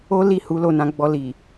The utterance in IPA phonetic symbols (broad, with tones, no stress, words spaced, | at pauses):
o˦ li˦˨hu˨˦ lo˦˨nã˧ ɡ͡bɔ˧ li˨